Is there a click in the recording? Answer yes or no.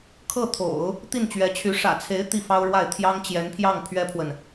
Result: no